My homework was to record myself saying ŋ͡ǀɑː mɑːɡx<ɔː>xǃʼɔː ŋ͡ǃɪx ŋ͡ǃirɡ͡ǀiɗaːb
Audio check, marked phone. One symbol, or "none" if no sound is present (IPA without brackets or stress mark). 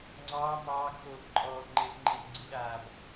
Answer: oː